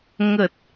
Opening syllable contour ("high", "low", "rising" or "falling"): low